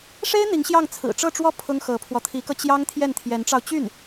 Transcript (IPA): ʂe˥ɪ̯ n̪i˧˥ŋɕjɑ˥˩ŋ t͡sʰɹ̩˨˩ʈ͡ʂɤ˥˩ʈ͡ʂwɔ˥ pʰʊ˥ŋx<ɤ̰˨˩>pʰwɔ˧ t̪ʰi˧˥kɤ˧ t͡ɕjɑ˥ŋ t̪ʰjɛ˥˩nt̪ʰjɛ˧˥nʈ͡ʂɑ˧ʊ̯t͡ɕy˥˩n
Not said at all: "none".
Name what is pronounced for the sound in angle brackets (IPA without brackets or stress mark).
ɤ˧˥